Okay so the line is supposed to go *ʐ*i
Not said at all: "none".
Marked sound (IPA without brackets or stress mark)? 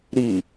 ɾ